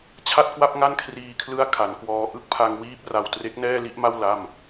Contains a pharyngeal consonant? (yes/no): no